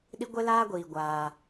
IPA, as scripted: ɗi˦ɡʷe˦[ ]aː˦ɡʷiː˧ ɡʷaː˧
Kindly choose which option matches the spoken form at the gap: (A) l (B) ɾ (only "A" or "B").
A